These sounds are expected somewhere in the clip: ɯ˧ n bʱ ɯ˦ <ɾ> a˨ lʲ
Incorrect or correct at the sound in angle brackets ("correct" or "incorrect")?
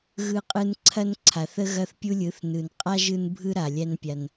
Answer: correct